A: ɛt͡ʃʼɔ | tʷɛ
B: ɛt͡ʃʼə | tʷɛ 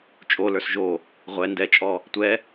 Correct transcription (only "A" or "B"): A